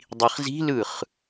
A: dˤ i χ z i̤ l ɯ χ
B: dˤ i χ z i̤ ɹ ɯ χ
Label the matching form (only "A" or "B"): A